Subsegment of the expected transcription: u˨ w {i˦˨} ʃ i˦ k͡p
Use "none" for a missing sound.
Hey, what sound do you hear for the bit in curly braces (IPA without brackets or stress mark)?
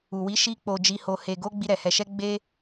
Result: i˨˦